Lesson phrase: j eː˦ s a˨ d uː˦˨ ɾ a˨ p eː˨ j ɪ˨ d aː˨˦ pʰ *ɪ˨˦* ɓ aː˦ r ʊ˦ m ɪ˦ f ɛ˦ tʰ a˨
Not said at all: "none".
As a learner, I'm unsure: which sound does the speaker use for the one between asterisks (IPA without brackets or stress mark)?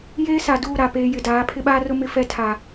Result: ɪ˦